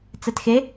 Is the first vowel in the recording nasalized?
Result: no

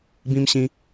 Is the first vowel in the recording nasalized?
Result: yes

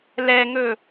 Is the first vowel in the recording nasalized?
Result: no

